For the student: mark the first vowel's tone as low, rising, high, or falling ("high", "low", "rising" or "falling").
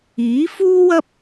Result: rising